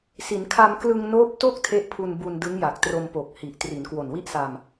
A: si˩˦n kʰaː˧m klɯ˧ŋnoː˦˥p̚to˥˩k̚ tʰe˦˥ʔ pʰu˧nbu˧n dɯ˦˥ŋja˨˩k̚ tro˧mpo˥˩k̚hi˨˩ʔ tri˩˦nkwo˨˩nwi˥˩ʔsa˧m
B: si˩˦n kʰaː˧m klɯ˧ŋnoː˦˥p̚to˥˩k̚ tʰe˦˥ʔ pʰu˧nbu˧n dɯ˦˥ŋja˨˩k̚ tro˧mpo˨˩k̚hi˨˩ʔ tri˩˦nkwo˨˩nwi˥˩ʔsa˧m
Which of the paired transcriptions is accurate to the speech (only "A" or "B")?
B